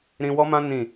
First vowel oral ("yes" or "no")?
no